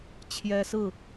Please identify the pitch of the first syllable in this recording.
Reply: high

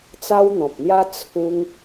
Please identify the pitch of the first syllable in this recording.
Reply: high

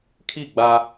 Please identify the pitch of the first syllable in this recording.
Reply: falling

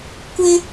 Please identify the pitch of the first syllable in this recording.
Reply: high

